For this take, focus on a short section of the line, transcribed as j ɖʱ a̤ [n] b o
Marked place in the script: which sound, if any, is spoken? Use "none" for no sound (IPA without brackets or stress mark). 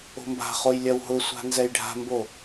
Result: m